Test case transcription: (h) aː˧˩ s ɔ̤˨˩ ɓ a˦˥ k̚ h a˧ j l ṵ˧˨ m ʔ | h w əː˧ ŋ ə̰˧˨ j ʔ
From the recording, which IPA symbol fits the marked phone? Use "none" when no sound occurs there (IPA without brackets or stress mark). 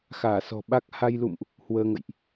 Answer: x